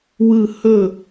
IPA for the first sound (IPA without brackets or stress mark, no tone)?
w